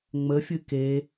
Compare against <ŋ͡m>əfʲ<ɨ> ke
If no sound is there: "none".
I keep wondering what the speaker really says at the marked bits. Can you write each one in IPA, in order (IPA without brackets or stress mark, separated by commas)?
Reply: ŋ͡m, ɨ